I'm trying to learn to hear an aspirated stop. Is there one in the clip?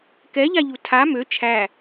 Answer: yes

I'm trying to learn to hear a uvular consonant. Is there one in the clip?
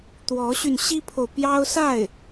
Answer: no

